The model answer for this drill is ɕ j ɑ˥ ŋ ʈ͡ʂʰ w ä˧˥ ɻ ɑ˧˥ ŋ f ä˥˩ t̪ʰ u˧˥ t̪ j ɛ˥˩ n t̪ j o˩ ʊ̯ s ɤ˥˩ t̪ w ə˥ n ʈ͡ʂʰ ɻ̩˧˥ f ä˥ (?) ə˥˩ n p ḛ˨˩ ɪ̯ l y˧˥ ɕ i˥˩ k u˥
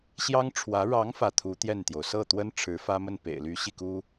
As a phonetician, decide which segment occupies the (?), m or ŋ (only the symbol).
m